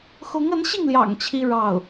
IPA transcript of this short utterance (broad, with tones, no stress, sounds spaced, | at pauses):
x ʊ˧˥ ŋ ə˧˥ n ɕ i˥˩ ŋ l j ɑ̰˨˩ ŋ t͡ɕʰ i˥ ɻ ɑ˥˩ ʊ̯